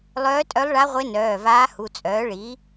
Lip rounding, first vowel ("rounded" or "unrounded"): rounded